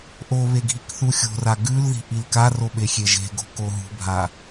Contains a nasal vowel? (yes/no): no